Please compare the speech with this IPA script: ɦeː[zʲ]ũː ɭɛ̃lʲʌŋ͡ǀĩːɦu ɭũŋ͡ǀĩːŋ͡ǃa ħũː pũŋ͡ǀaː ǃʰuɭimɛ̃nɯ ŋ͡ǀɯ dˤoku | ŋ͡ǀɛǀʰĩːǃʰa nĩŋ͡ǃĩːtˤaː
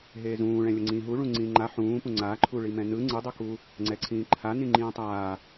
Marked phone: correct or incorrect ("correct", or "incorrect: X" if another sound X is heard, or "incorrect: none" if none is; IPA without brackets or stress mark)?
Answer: incorrect: z